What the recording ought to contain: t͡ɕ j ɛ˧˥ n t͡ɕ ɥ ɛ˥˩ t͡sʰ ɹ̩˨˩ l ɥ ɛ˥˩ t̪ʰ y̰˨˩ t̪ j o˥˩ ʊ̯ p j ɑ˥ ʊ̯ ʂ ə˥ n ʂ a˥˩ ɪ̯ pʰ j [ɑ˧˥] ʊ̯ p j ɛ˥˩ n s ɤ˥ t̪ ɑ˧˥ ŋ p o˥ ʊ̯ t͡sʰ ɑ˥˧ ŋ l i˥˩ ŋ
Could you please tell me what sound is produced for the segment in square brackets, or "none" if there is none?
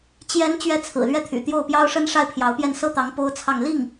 ɑ˧˥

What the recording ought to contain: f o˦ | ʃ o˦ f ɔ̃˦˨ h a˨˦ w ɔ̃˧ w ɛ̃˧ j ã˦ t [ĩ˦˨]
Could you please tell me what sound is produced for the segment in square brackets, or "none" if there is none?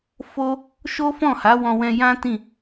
ĩ˦˨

